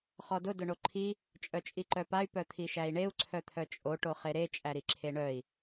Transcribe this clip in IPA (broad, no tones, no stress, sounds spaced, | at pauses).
χ ɔ d ʊ d ʊ ɳ o ǃʰ i | t͡ʃʼ œ t͡ʃʼ i ǃ œ p a y̯ p œ t̪ʰ i ʃ æ i̯ ɳ e u̯ ǀʰ œ t̪ʰ œ t͡ʃʼ o ʈ o χ e ɾ e t͡ʃʼ æ ɾ i ǁʰ e ɳ œ i̯